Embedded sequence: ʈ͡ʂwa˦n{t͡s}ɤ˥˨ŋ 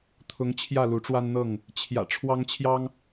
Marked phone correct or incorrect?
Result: incorrect: n̪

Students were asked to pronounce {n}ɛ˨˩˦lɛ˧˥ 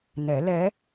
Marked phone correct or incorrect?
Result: correct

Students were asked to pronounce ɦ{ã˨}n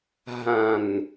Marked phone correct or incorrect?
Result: correct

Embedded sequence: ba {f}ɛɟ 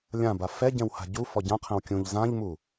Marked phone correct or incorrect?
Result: correct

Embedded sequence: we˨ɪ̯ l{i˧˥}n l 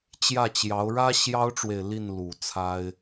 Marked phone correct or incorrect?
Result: incorrect: i˥˩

